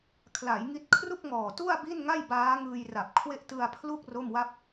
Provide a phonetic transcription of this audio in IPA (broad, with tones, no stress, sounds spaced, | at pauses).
kʰ l a˩˦ j ŋ i˦˥ t̚ kʰ r u˥˩ k̚ ŋ ɔː˨˩ t u˥˩ a̯ b i˥˩ n ŋ a˥˩ j b aː˦˥ ŋ ɯː˧ j r a˨˩ p̚ kʰ w e˦˥ ʔ t ɯ˧ a̯ pʰ l u˥˩ k̚ r o˥˩ m w a˥˩ p̚